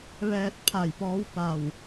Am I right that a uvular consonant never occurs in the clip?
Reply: yes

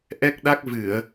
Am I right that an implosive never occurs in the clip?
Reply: no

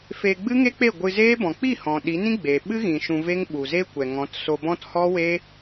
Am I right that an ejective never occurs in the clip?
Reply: yes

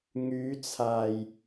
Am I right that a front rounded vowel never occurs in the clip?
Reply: no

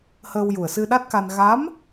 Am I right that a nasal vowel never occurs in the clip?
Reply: yes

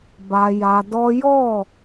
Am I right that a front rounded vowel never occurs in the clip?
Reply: yes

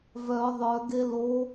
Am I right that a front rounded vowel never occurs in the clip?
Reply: no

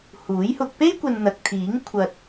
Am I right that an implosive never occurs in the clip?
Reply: yes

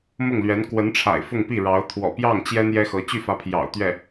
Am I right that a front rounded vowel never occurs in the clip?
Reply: no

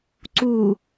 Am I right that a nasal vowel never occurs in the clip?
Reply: yes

